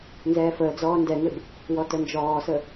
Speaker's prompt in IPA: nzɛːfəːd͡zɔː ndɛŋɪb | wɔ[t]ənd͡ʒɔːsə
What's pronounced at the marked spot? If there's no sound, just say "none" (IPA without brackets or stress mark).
t